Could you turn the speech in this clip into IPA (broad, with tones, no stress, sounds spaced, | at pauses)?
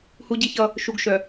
h u˦ ɟ i˦ ç ʌ˦ | ʃ u˨ ɡ ʃ œ˨